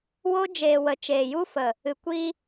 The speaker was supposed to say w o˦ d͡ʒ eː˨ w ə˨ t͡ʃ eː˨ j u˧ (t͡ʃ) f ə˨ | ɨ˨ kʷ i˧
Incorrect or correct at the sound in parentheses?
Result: incorrect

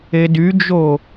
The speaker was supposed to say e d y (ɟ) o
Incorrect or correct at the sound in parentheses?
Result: incorrect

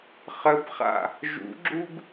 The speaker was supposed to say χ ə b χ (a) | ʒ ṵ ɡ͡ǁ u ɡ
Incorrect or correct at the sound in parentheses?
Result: incorrect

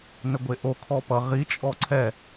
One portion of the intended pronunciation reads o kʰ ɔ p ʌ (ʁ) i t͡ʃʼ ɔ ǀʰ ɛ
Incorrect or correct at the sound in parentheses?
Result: correct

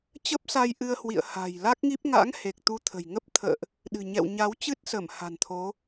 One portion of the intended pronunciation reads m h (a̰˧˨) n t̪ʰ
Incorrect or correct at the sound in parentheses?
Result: incorrect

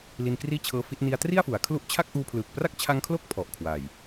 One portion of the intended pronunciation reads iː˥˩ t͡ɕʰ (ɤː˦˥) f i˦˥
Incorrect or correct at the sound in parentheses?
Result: correct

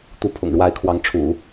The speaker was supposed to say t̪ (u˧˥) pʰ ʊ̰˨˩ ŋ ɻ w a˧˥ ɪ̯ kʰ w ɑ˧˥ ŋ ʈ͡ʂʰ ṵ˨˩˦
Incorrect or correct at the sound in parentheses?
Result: correct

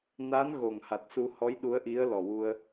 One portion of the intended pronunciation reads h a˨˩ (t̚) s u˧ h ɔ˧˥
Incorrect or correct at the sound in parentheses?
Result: correct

